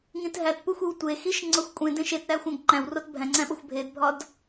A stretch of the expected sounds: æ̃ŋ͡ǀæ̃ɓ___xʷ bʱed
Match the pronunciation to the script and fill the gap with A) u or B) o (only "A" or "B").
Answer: B